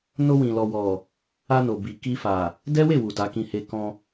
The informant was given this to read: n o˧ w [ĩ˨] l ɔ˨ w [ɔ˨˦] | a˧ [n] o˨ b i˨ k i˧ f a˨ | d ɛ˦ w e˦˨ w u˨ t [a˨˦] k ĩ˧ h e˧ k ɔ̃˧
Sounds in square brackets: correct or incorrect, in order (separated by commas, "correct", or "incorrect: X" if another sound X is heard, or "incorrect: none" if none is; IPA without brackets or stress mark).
correct, incorrect: ɔ˨, correct, correct